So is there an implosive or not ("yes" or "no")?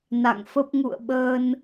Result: yes